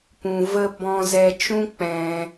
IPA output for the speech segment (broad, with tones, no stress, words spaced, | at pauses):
pũ˨və˧ bɔ̃˧zɛ˧ t͡ʃũ˦k͡pɛ̃˧